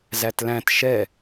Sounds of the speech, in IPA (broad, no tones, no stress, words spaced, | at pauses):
zætlæ̃t ʃɛ